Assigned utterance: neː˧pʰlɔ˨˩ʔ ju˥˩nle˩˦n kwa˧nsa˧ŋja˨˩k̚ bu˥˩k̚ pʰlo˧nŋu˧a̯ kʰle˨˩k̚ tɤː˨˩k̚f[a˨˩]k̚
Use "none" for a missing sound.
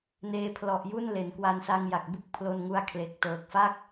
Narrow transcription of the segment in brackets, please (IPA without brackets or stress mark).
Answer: a˥˩